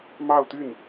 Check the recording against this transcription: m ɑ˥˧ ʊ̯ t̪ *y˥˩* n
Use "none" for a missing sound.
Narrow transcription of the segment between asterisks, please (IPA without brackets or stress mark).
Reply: y˥˩